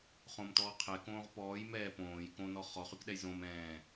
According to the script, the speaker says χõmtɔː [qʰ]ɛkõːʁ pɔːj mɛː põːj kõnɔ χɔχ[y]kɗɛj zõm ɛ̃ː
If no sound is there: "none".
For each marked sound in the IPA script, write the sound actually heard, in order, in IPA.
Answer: qʰ, y

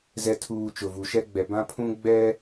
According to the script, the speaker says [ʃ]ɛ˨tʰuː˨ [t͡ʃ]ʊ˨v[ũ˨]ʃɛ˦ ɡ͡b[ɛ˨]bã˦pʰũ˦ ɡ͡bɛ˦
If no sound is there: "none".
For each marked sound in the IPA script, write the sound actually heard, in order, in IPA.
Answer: z, t͡ʃ, u˨, ɛ˨

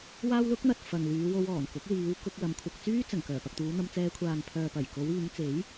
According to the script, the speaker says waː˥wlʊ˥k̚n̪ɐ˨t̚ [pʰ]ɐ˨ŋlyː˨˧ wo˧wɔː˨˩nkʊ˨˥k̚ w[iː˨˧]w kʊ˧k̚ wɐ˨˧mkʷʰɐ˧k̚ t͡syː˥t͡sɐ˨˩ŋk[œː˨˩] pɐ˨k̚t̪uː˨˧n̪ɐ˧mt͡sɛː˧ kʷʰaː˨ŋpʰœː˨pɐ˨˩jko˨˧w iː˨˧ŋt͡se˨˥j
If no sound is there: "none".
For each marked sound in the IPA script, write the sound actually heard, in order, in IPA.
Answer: f, iː˨˧, œː˨˩

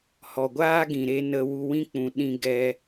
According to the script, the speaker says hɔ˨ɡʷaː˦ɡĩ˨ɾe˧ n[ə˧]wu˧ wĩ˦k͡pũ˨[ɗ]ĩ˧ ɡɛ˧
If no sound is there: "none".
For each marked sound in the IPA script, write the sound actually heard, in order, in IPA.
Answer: ə˧, ɗ

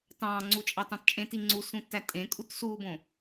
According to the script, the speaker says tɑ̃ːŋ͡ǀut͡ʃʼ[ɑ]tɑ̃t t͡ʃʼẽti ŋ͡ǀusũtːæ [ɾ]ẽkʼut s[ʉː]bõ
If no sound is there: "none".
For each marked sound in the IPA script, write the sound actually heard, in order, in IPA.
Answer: ɑ, tʼ, uː

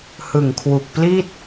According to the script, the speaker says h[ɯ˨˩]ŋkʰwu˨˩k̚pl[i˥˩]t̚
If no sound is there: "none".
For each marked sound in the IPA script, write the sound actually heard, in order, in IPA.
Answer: ɯ˨˩, i˥˩

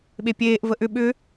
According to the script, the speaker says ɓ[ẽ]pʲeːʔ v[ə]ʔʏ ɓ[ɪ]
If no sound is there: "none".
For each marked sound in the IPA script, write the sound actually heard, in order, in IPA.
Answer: e, ə, ʏ

